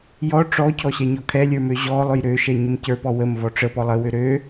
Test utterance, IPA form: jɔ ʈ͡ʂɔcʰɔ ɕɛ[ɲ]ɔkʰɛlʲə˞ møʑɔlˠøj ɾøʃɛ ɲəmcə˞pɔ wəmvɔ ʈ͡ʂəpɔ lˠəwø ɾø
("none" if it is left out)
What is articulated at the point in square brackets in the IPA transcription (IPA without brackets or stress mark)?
ɲ